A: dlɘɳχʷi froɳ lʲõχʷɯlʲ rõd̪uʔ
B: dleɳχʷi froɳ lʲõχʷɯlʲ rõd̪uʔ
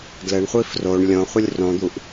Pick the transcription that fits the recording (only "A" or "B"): A